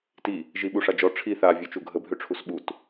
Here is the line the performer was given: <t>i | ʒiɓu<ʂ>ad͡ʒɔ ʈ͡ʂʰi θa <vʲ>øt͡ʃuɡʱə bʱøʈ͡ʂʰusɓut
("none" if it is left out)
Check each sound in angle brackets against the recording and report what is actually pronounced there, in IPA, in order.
t, ʂ, vʲ

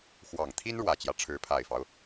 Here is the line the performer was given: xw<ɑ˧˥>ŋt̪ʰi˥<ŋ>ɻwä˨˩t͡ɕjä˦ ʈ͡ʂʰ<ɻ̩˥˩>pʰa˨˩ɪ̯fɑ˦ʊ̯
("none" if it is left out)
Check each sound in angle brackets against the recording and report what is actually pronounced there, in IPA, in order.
ɑ˨˩, n, ɻ̩˧˥

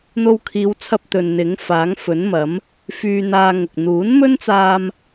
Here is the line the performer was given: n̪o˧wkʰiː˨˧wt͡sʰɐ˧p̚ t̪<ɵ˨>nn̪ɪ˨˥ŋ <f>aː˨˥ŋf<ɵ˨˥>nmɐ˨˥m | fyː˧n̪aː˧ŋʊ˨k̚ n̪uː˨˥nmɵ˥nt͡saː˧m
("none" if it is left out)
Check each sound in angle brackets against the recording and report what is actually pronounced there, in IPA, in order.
ɵ˨, f, ɵ˨˥

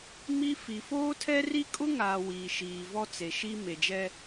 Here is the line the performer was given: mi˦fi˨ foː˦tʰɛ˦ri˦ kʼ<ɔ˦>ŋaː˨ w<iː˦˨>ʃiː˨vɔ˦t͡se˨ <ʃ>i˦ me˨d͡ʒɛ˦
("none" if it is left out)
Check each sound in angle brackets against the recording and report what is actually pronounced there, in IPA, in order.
ʊ˦, iː˨, ʃ

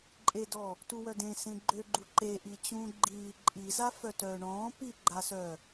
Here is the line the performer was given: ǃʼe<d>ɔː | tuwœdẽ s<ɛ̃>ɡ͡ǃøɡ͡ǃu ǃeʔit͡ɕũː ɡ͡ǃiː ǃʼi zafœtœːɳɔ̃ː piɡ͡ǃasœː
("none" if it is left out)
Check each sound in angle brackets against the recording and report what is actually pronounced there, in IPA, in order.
d, ẽ

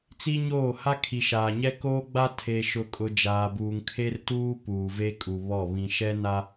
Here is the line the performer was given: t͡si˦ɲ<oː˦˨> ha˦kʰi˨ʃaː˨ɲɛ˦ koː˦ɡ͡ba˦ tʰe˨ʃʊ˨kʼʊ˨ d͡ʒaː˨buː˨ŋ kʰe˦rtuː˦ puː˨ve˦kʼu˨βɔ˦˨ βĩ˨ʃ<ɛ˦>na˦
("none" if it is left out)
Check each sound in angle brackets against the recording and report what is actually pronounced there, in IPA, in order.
oː˦˨, ɛ˦

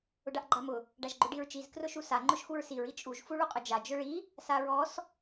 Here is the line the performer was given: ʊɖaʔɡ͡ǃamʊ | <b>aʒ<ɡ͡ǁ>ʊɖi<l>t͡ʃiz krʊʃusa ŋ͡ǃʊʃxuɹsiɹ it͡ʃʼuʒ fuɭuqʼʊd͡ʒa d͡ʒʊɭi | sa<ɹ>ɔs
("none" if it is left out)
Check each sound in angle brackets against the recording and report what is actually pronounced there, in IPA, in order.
ɖ, ɡ͡ǃ, ɹ, ɹ

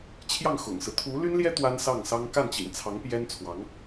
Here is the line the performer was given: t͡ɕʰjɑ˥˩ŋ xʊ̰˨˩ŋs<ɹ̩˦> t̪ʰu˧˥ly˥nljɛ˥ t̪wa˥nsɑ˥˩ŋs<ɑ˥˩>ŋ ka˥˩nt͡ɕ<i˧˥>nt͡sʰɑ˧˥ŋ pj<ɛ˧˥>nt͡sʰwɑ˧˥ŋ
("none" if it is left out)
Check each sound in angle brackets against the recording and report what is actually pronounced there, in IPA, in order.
ɹ̩˦, ɑ˥, ḭ˨˩, ɛ˥

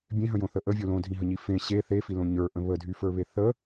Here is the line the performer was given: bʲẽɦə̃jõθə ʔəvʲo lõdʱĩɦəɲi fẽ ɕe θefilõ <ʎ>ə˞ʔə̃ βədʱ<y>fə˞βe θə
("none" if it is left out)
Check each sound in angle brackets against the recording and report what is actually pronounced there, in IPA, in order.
ɲ, y

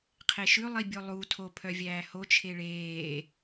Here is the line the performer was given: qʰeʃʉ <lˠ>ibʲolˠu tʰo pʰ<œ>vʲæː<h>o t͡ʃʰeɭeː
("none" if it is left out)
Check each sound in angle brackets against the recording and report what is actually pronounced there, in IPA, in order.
lˠ, œ, h

